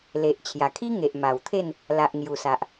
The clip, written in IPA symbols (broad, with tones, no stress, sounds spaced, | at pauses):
l e˨ ʔ t͡ɕʰ j a˨˩ kʰ i˦ ŋ e˨ ʔ m a˨˩ w t̪ʰ e˥˧ n | l a˨ ʔ ŋ j u˨˩ s a˨ ʔ